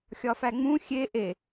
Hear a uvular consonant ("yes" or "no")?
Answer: no